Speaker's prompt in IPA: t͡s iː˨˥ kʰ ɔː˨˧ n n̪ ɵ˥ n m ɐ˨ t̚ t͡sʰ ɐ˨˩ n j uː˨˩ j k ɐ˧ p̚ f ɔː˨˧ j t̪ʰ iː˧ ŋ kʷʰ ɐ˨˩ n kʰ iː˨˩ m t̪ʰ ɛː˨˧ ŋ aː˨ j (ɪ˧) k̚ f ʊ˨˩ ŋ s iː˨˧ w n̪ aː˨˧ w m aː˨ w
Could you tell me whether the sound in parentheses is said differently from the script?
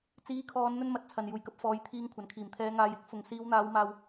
yes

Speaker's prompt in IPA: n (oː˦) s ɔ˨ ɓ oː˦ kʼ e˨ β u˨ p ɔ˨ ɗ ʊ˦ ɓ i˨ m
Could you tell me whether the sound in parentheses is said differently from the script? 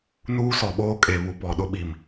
yes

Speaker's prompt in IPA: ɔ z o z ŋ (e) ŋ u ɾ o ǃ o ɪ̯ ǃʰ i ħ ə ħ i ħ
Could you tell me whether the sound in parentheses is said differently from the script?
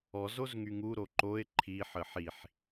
yes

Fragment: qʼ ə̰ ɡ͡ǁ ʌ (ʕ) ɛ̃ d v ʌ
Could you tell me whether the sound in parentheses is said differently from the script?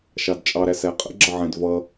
no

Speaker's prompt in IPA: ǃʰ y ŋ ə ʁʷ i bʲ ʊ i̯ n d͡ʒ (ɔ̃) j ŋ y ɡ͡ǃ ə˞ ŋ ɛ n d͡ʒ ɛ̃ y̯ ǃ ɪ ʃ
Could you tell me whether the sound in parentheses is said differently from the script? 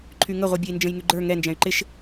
yes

